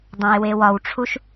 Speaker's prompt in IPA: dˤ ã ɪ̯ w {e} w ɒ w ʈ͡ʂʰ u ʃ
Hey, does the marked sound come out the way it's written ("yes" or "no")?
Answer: yes